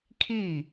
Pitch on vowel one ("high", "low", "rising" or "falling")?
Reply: falling